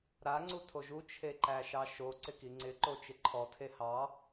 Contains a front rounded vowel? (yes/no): no